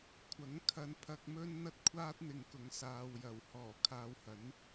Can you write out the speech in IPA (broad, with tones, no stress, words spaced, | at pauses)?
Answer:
kʷʰɐ˨˥ŋkʰɐ˧npʰɐ˧k̚mɵ˥n n̪ɐ˥t̚kʷʰaː˥t̚n̪ɪ˨ŋ kʊ˨ŋsaː˨wjɐ˨˩w hɔː˨˩kʰaː˧whɐ˨˥n